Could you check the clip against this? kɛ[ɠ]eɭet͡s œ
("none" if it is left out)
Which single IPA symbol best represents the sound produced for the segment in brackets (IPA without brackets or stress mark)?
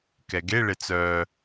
ɡ